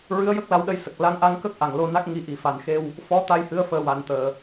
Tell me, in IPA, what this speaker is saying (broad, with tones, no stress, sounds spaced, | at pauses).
ɹ ɨ˧˥ ə̯ j ə˦˥ k̚ l a˧ w ɗ ə˧ j s ə˨˩ k̚ l a˧˥ ŋ ʔ a˧˥ ŋ k ə˦˥ k̚ ʔ a˨˩ ŋ l o˧ n a˦˥ k̚ ŋ i˧ ʔ i˨˩ f a˨˩ n x e˧ w | f ɔ˧˥ t̪ a˧ j h ɨ˧˥ ə̯ f əː˨˩ w a˨˩˨ n t̪ əː˨˩˨